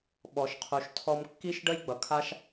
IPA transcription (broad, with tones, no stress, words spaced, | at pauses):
ɓɔ˨ʃqʰu˨ʃtʰɔ˧m kːi˦ʃɖə˦jɡ͡bʌ˨kʰa˦ʃ